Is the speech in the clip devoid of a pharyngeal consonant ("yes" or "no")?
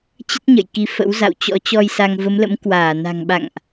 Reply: yes